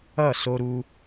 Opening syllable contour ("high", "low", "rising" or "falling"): falling